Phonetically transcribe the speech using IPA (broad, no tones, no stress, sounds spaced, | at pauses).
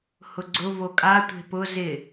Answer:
h ʊ ɡ͡ǀ ʊ v o kʼ a tʷ e̤ p ʊ z ɪ